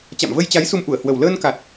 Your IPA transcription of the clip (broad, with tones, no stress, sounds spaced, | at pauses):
t͡ɕ a̰˧˨ m v ə˧ j t͡ɕ a˨˦ j s u˧ m ʔ u˧˩ ə̯ h w ə˨˩ w l əː˧ n k a˨˩ t̚